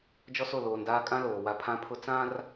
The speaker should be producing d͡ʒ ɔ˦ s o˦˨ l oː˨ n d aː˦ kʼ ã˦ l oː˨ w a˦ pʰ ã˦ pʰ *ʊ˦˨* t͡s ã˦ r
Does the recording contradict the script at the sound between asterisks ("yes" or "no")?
yes